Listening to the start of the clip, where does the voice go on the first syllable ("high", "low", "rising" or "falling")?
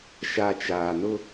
low